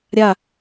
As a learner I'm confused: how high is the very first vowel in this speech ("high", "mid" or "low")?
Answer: low